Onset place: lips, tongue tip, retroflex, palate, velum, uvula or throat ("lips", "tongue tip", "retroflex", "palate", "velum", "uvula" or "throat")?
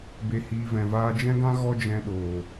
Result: lips